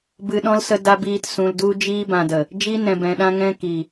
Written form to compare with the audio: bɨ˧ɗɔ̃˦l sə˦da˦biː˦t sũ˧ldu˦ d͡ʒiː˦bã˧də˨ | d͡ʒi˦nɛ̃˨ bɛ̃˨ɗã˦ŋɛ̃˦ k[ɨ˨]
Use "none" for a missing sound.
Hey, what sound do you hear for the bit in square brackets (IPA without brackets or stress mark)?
i˨